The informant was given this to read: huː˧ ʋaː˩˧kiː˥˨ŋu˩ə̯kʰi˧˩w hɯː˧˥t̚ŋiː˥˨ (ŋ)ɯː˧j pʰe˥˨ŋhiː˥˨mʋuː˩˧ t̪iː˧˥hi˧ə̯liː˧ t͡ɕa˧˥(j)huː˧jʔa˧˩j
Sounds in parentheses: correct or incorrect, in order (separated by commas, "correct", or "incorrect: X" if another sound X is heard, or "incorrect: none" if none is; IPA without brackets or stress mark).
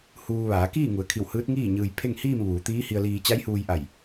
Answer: incorrect: ɲ, correct